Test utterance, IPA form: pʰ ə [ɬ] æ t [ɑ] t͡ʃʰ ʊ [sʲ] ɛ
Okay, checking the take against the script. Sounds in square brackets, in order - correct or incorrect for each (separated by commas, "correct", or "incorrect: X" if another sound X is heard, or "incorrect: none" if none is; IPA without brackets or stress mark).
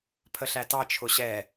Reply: correct, correct, incorrect: ɕ